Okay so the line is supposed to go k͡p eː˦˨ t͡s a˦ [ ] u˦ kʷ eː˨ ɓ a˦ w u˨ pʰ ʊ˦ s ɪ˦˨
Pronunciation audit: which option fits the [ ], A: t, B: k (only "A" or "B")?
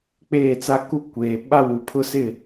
B